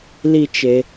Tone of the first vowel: high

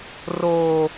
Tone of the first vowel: high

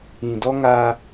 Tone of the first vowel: low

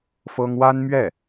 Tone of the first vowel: high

